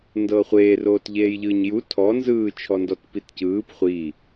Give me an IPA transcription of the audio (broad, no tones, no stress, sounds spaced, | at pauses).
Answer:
n d ɤː χʷ eː r oː t ʎ eː j ʎ ɯː ɲ j u tʰ ɔ n z ɯː t͡ʃʰ ɔ n d ɔ t p i t c ɯː p χʷ i